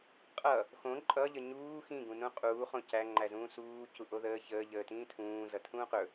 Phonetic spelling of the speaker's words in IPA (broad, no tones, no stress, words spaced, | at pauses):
qʼʌ | xõ ǃʼʌʎə ɲuː xĩɡũ nũqʼuːχõ cæŋ͡ǃæzũː suːcu ʔoðəː çəːʎəː tĩːtʰũː zʌtʰũːqɵ